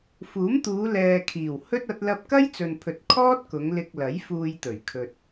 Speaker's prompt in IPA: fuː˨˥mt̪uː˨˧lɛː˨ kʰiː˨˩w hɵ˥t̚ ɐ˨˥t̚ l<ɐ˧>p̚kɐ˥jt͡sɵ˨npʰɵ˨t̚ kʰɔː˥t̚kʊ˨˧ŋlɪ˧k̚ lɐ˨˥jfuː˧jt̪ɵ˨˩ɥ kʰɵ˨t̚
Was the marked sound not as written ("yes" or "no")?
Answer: no